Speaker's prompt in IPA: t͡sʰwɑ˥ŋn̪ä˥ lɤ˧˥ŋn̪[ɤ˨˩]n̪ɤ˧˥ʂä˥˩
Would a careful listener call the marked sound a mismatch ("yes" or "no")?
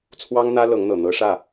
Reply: no